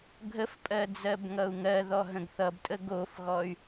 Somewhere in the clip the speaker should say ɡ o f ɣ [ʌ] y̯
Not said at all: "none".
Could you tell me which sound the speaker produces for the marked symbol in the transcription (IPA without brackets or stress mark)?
ɔ